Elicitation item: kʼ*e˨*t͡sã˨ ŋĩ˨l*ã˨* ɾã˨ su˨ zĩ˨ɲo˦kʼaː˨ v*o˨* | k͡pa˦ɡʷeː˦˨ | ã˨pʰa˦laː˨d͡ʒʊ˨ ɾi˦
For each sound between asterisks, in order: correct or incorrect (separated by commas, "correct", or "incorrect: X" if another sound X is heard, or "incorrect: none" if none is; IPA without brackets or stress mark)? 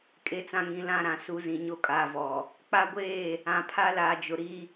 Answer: correct, incorrect: ã˦˨, incorrect: ɔ˨